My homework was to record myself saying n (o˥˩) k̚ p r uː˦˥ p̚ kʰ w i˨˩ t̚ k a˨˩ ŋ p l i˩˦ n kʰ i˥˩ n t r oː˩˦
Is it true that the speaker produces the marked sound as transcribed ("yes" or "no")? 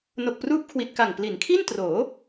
no